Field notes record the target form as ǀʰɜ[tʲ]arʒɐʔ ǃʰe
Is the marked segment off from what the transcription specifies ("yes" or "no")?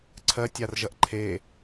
no